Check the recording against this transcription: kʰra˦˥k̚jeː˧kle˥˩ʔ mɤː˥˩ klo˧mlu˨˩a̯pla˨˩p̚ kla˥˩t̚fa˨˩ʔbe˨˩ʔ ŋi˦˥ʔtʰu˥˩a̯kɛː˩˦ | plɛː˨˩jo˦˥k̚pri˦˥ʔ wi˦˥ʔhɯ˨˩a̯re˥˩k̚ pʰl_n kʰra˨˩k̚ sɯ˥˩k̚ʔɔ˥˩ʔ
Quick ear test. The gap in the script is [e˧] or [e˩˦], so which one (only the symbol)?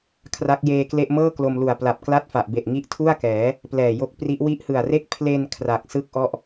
e˧